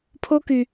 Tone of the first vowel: high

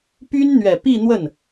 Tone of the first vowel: high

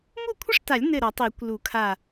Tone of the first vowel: falling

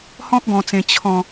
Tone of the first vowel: high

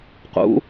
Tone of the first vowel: rising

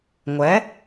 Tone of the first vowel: rising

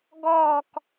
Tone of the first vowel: falling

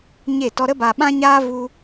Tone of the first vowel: falling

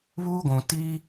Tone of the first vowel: high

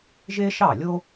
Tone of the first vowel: high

